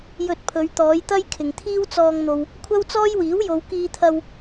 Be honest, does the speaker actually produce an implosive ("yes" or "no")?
no